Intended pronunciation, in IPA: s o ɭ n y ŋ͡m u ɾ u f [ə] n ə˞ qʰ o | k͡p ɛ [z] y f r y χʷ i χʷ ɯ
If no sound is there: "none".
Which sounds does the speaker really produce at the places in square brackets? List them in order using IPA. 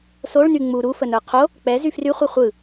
ə, z

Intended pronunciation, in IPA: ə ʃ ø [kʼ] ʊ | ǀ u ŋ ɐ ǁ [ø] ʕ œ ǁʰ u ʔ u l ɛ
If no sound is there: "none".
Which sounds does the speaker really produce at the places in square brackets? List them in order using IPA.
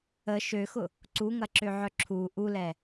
x, ø

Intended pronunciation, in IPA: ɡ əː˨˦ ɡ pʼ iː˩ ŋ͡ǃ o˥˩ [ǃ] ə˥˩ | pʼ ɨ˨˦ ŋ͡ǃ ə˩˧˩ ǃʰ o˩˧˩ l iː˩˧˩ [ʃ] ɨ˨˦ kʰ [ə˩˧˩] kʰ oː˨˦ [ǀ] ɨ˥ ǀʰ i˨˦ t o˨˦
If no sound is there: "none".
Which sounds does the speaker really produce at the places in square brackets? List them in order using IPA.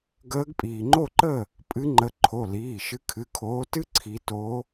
ǃ, ʃ, ɨ˩˧˩, t

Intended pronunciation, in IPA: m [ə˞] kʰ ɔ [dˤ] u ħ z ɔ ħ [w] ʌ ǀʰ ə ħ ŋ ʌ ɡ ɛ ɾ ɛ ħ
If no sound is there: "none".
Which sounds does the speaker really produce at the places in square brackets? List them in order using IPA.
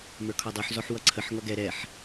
ə˞, dˤ, w

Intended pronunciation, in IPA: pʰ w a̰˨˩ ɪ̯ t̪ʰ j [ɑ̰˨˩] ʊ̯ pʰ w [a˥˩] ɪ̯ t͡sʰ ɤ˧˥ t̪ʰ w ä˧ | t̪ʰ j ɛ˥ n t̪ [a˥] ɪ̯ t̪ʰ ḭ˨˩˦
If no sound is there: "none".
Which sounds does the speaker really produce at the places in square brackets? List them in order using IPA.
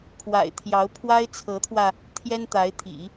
ɑ˧˥, a˥, a˧˥

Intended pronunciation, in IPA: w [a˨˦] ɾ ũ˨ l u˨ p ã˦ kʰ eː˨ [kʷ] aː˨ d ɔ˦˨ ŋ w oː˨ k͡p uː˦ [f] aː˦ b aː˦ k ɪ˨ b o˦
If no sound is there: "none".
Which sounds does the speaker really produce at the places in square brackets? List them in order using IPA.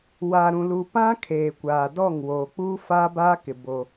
a˨, kʷ, f

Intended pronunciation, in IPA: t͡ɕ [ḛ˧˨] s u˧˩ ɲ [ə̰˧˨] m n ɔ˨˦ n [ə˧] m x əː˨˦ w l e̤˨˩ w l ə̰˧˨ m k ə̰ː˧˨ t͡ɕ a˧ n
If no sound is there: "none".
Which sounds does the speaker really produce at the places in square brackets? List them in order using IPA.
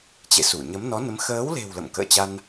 ḛ˧˨, ə˨˦, ə˨˦

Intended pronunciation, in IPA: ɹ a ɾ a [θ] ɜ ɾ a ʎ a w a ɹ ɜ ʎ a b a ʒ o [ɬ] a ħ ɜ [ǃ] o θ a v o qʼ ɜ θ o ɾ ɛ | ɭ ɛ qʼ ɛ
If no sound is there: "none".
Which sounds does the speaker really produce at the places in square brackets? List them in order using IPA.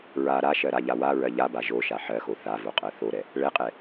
ʃ, ʃ, x

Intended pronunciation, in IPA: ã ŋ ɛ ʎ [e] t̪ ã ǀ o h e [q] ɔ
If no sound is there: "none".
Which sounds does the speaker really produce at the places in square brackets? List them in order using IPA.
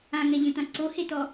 ẽ, t

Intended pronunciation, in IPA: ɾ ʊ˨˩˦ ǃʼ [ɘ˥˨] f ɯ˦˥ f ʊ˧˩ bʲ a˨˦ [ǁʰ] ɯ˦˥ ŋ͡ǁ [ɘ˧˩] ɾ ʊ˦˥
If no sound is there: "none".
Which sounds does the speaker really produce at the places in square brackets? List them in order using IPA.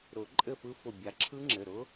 ɘ˥˨, ǁʰ, ɘ˩˧˩

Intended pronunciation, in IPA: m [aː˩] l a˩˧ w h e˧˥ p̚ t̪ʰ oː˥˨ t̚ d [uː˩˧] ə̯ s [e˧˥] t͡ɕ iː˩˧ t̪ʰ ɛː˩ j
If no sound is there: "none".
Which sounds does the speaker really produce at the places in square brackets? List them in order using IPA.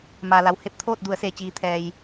aː˩, u˩˧, e˩

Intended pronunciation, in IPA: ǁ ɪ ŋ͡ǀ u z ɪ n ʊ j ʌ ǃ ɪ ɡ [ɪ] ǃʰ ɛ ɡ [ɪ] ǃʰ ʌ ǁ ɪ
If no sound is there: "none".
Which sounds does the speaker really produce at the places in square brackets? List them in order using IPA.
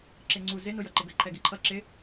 ə, ɪ

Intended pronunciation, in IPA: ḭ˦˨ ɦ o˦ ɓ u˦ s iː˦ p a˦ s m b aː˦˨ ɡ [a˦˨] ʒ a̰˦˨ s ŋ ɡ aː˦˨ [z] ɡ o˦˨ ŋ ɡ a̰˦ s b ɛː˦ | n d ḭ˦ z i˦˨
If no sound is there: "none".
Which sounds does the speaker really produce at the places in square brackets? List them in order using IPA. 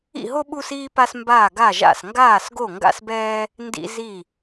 a˦˨, s

